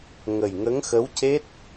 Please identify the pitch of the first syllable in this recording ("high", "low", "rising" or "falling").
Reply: low